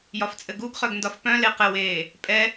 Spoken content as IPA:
j ɒ f t͡sʼ ɘ ɡ u ɡ χ œ ɡ n d ɒ f p œ̃ l e q ɘ w eː | pʼ ɛ

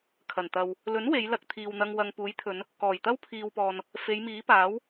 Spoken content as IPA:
kʰ ɐ˨˩ n t̪ ɐ˨ w | l ɵ˨˥ n w e˨˧ j l ɐ˧ k̚ t̪ʰ iː˨ w n̪ ɐ˧ ŋ w ɐ˨ ŋ p uː˨˥ j t̪ʰ ɵ˨˧ n | k ɔː˨˩ j t̪ ɐ˥ w pʰ iː˨ w p ɔː˨ n | f e˨˧ j m iː˨˥ p aː˨˥ w

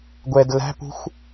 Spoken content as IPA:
ɡʷ ɛ d l æ̤ p ṳ xʷ

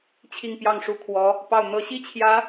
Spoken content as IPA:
t͡ɕʰ i˥˧ ŋ p j ɑ˥˩ ŋ ʂ u˧˥ kʰ w ɔ˧˥ | p ɑ˥˩ ʊ̯ n̪ ɤ˧˥ ɕ i˥ t͡ɕʰ j ä˧˥

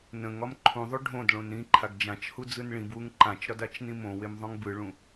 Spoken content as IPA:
n ə̃ ŋ ɒ m ǃʰ ũ ðˤ o ɖʱ õ d ɭ õ n ɾ ĩ ǃʰ a ɡ d͡ʒ ã t͡ʃ h u d͡z ɯ n ɭ ĩ b w u ŋ ǃ ã t͡ʃ ɾ ɒ d a t͡ʃ n ĩ m õ w e m ðˤ õ ŋ b ɯ ɭ ũ

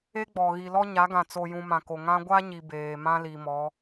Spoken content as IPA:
e˦ ɡ͡b ɔ˨ ɣ i˨ l ɔ˦ ɲ a˨˦ ɡ ã˨ t͡s o˨ j ũ˨ m ã˨ k o˨ ŋ ã˦ ɡʷ a˦ ɲ i˨ b eː˨ m ã˦ l i˨ m ɔ˨˦

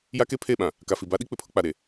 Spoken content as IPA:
j a˦ k e˦ pʰ e˦˨ ɓ ã˨ | k a˨ f i˨ b a˦ ɗ i˦ k͡p ɪ˨ pʰ ʊ˦ k͡p a˨ ɾ e˨

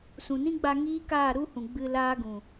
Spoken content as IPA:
s ũ˨ n ĩ˦ ɡ͡b a˧ ŋ iː˦ k aː˦˨ ɾ u˦ h ũ˨ ɡ͡b ɨ˧ l aː˦ ɡ ũ˨

